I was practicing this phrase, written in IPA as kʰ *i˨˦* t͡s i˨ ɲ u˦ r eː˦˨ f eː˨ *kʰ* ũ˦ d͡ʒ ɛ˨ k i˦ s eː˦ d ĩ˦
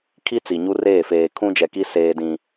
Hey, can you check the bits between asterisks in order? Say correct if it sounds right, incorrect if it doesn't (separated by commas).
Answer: incorrect, correct